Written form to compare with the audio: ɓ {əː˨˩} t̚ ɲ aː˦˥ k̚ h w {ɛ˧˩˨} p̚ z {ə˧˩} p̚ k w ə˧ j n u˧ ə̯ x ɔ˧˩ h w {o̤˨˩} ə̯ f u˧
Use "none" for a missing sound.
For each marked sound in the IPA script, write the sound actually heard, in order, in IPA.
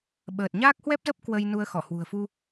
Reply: əː˨˩, ɛ˦˥, ə˦˥, ṳ˨˩

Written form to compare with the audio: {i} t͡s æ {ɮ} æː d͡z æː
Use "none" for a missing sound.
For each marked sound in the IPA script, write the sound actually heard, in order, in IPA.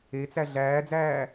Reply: e, ɮ

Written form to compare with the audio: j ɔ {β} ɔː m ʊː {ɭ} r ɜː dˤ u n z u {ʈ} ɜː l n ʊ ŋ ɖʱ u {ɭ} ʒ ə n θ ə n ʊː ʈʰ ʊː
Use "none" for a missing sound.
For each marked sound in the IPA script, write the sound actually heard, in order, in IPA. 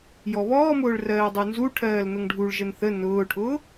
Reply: β, ɭ, ʈʰ, ɭ

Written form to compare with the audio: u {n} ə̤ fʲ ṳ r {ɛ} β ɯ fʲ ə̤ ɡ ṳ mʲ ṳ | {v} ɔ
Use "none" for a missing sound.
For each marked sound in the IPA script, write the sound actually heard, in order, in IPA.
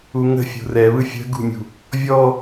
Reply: ŋ, ɛ, vʲ

